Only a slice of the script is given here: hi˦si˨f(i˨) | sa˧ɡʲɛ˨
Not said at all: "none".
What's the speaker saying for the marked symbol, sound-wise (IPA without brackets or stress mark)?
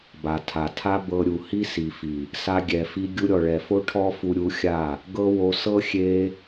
i˨